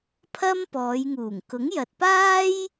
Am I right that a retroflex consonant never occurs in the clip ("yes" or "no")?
yes